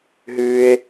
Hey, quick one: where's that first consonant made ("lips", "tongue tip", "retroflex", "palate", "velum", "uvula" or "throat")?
throat